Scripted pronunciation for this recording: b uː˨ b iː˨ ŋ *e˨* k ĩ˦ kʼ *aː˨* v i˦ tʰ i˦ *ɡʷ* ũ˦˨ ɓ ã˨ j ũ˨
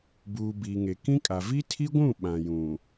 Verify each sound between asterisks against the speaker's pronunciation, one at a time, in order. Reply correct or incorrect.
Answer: correct, incorrect: a˨, correct

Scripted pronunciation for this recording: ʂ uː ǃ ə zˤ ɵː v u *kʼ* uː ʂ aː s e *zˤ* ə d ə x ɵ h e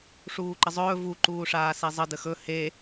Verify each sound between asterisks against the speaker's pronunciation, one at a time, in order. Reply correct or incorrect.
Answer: incorrect: ǃ, correct

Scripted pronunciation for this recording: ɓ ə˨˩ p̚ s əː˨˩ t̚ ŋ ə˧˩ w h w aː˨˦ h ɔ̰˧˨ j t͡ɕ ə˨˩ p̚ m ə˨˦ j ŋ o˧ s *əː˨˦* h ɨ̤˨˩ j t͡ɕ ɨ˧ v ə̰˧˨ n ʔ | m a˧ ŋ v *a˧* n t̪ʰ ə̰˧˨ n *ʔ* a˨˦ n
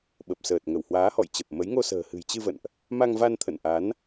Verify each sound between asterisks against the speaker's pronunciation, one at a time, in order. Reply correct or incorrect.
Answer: incorrect: ə̤ː˨˩, correct, correct

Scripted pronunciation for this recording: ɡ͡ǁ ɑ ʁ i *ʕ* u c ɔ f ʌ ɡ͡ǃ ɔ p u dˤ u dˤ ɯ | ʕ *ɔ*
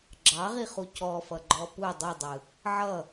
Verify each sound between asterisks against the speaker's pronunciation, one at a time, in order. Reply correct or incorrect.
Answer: incorrect: χ, incorrect: ʌ

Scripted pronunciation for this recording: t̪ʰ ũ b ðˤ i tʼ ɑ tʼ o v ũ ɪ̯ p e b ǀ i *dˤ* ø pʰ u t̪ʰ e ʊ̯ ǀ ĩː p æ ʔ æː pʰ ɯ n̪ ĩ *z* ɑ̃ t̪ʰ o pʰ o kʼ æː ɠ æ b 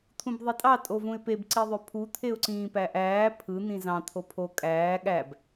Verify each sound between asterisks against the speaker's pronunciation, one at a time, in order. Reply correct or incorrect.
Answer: incorrect: ðˤ, correct

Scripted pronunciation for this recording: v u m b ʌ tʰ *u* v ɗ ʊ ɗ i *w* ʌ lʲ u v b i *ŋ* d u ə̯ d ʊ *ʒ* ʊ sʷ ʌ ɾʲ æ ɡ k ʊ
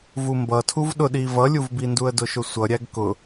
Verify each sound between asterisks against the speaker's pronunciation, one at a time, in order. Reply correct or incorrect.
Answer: correct, incorrect: v, incorrect: n, incorrect: ʃ

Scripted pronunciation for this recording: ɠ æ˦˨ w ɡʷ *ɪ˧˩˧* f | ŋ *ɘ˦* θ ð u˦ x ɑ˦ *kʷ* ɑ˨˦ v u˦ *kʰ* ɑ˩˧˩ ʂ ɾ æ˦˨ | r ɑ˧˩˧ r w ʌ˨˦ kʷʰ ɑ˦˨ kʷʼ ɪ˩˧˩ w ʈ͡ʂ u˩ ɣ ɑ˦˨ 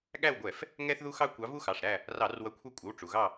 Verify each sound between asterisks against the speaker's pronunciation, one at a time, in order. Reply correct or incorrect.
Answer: incorrect: ɛ˧˩˧, incorrect: ɛ˦, correct, incorrect: x

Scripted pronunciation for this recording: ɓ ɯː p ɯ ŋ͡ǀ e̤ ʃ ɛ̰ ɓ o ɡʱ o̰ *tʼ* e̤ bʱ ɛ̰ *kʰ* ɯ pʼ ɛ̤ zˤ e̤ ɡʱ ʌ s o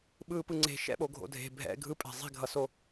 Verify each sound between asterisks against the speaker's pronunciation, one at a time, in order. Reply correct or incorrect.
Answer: incorrect: dʱ, incorrect: ɡʱ

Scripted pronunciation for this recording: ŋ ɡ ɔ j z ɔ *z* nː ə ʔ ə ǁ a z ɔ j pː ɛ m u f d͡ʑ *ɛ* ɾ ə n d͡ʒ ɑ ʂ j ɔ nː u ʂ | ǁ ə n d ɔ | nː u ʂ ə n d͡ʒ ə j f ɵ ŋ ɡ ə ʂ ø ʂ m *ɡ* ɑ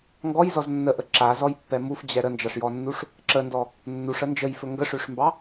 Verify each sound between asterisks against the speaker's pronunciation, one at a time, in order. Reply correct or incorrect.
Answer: correct, correct, incorrect: b

